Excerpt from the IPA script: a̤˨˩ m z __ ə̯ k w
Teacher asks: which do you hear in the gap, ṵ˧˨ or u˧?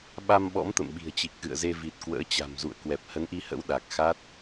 ṵ˧˨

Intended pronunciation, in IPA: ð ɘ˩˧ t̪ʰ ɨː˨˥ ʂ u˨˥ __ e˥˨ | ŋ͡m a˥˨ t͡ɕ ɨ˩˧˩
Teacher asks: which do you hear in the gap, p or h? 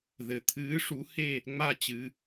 h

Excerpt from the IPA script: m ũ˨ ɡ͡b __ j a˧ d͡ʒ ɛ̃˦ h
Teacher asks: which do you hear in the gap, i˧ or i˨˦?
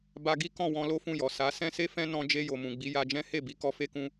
i˨˦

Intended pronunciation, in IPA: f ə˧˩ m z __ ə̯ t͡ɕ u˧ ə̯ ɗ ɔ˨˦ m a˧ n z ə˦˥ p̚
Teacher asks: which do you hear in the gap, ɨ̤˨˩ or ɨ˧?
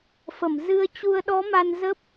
ɨ˧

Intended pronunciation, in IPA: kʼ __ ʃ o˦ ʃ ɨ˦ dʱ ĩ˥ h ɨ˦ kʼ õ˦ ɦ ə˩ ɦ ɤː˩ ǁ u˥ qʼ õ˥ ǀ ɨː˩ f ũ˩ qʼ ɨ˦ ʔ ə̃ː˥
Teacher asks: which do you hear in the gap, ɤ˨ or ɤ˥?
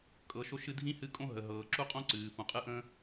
ɤ˨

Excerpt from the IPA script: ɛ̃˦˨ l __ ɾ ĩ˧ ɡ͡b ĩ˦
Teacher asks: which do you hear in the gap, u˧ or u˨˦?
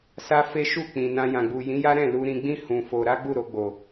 u˧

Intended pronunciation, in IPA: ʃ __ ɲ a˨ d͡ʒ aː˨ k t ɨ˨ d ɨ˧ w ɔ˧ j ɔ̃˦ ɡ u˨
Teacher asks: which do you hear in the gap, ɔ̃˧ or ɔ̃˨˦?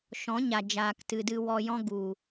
ɔ̃˨˦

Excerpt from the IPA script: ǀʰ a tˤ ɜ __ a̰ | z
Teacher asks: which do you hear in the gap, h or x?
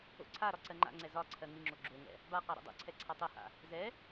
h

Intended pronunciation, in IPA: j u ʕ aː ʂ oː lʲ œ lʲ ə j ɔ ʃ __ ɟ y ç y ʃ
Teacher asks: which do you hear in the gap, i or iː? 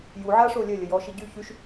i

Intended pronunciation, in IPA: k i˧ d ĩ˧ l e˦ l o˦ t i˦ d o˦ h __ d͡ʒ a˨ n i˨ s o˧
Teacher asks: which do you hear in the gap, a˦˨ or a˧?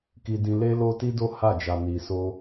a˦˨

